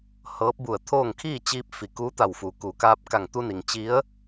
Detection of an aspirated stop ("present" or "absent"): present